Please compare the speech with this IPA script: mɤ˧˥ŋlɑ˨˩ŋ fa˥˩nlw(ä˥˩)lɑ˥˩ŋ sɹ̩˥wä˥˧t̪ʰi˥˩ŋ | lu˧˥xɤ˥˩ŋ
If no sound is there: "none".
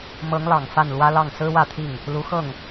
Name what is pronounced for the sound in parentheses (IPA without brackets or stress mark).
ä˥